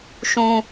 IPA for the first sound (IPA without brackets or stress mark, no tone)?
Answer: ʃ